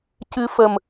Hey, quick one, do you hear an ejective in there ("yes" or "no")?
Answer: no